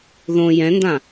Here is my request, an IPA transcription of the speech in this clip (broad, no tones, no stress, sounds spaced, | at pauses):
ð õ j ɛ̃ n d ã